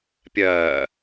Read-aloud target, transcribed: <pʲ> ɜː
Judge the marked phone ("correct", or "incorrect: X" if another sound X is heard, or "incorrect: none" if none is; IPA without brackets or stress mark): correct